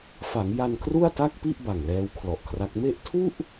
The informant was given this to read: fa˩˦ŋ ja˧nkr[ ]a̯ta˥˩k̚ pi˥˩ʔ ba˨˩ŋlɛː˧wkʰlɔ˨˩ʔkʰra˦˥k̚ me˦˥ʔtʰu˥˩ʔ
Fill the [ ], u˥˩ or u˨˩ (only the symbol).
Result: u˥˩